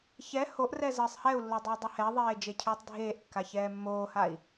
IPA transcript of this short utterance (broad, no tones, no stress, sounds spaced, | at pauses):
ç ɛ h o ʔ r ɛ z əː sˤ h ɛ u̯ lː o dˤ əː dˤ ə h ɛ ðˤ eː d͡ʒ e cʰ ʏː tˤ dʱ eː ʔ kː a ç ɛː mː oː h a i̯